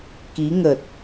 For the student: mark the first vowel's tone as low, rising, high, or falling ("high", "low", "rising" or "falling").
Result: rising